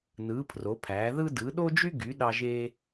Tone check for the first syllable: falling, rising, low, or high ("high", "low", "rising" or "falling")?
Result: rising